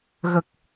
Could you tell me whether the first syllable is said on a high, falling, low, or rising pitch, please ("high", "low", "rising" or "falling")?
low